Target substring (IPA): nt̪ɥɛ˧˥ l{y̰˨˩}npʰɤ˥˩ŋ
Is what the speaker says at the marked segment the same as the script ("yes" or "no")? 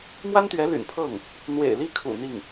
yes